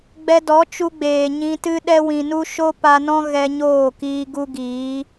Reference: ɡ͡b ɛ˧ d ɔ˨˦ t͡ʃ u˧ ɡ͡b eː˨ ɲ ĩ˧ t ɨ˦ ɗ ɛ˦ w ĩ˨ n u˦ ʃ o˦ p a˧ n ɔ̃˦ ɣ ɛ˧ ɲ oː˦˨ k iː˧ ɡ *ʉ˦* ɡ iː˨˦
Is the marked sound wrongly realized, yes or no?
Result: yes